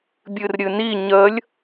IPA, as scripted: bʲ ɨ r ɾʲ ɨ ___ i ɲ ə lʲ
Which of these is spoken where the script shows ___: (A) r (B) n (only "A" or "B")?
B